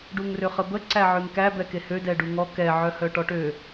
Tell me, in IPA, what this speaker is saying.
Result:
ɖ u ŋ r ø χ ə b ə ǀ æ ʕ ø ŋ k æ b ɛ k e h ø d ɛ ɖ u ŋ ɔ k ɛ ʕ œ h œ ʈ ɔ ʈ ø

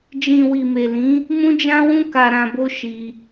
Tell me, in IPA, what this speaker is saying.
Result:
d͡ʒ ĩ˨ w i˨ m e˨ l ĩ˨˦ | m ũ˧ d͡ʒ ã˧ w ũ˧ k a˨ ɾ ã˨ b o˧ ʃ i˧

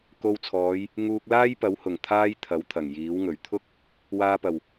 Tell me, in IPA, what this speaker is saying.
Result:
k o˧ w t͡sʰ ɔː˨˧ j | ŋ uː˧ k̚ l aː˥ j p ɐ˨˥ w h ʊ˨˩ ŋ t̪ʰ aː˥ j t̪ʰ ɐ˨˥ w t̪ʰ ɐ˨˩ ŋ j iː˨˥ w ŋ ɵ˨˩ ɥ t̪ʰ ʊ˥ k̚ | w aː˧ p ɐ˨˩ w

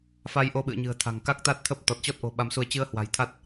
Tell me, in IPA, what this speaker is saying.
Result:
f a˧ j ʔ o˧ ɓ ɨ̰˧˨ ə̯ ɲ ɨ̤˨˩ ə̯ t̪ʰ a̤˨˩ ŋ k a˦˥ k̚ t̪ a˦˥ t̚ t̪ʰ ə˦˥ p̚ t̪ ɔ˨˩ t̚ t͡ɕ ɔ˦˥ t̚ ʔ o̤˨˩ ɓ a˨˦ m s u˧ ə̯ t͡ɕ ɨ˧ ə̯ h w a̤˨˩ j t̪ʰ a˦˥ t̚

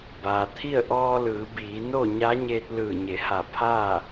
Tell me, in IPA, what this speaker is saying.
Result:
b aː˩ t̪ʰ i˥˨ ə̯ ʔ ɔː˧ l ɯː˩˧ b iː˩˧ n o˥˨ ɲ a˧˥ ɲ eː˧ t̚ l ɯː˧˩ ɲ e˩˧ h a˧˩ pʰ a˥˨

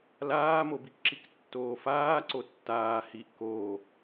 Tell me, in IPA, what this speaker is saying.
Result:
l aː m o b i k ǁ i k tː oː f aː ǀ o tː aː h i ʔ k oː

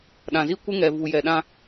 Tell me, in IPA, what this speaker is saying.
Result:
ɗ ã˨ z i˦ kʷ ɪ˦ ŋ ɛ˨ v u˨ j ɛ˨ ɗ ã˦

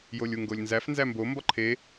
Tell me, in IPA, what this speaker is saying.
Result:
j o lʲ u ŋ ɡ o lʲ n z æ f n z æ m b o m b ɒ ǃʰ e

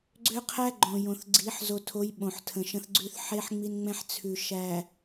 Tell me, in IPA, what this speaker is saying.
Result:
ɡ͡ǀ ø˦ qʰ æ˦ ɡ͡ǃ õ˨ j õ˨ θ ɡ͡ǀ i˨˦ ħ z o˨ tʰ o˨˦ j ɓ õ˨ ħ tʰ ə̃˨ ʃ ə̃˦ θ ɡ͡ǀ ʉ˦ θ ħ e˦ ħ ŋ͡m i˦ n ŋ͡m ɛ̃˦ ħ t͡sʰ ʉ˨ ʃ æ˨

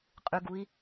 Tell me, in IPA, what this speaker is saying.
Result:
qʼ ʉ ɡ u i̯

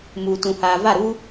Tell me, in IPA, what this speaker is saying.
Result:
m uː˨ t ũ˨ h aː˨ v a˦˨ ɾ uː˦

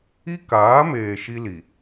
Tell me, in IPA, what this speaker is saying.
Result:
i˦ k aː˨˦ m eː˨ ʃ i˦ l i˨

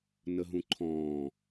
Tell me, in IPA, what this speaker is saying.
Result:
n ə ɦ ũ ǃʰ ɔ̃ː

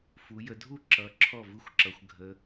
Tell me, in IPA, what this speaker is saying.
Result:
f u˩˧ j ə˩˧ dʱ u˥˩ ǁ ʌ˩˧ ǁʰ ɔ˥˩ v ɯ˥˩ xʷ ǁ ʌ˩˧ xʷ ɡʱ ə˩˧

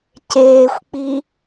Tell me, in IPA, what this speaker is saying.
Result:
c eː xʷ k͡p i

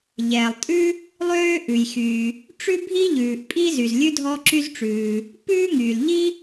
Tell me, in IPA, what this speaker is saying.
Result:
ʎ ɛː˩ lˠ tʼ ʉ˥ | lˠ øː˥ ʔ ʉ˩ j x yː˩ | ʈ͡ʂ ʉ˥ bʱ i˥ ʎ ʉː˩ ʔ pʼ i˥ z y˩ z lʲ ʉ˥ dʱ ɔ˥ ǁ y˥ z ʈ͡ʂ ʉː˩ | p ʉː˥ ŋ yː˩ l ʎ i˥

